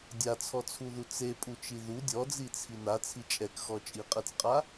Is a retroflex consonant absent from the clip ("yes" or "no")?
yes